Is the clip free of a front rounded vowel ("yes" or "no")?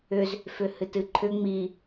no